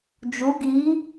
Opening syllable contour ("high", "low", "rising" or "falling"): rising